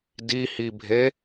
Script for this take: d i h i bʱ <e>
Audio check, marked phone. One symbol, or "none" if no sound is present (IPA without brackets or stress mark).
e